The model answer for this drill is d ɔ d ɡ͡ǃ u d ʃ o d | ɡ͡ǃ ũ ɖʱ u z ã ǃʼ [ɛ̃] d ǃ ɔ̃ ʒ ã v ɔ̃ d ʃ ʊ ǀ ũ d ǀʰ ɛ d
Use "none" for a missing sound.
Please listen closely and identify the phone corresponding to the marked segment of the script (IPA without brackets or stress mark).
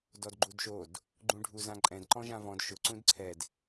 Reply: ɛ̃